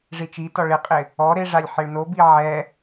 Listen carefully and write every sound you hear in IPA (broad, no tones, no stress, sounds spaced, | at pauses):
ʐ i t͡ʃ i t ɔ ɭ ɪ qʼ ɪ | ɔ ɾ e ʐ a lʲ ħ ɪ ɭ n o b i ʕ ɛ